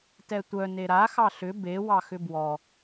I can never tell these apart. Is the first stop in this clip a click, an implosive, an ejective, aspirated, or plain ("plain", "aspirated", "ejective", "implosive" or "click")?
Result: plain